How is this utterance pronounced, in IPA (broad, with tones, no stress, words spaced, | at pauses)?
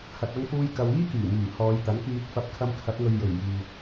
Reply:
hɐ˧t̚ɐ˥ŋfuː˥jkɐ˧w iː˥kyː˨˩myː˨˩ hɔː˨˧jt̪ɐ˨˥nkiː˧t̚ fɐ˥p̚ kʰɐ˧mkʰɐ˨˥t̚ŋɵ˨ɥ jɵ˨˩ɥ jiː˨